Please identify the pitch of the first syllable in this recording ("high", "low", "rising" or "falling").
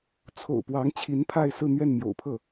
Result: low